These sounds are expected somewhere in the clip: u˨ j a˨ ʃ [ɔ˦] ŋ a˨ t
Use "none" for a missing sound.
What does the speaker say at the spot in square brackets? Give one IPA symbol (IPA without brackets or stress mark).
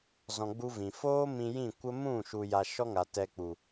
ɔ˦